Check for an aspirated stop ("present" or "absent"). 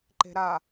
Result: absent